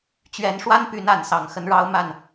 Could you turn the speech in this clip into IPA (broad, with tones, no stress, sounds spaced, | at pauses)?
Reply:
t͡ɕ ɥ ɛ˨˦ n ʂ w a˦ n p y˨˦ n a˨˦ n s ɑ˨˦ ŋ x ə˦ n ɻ ɑ˦ ʊ̯ m a˥˨ n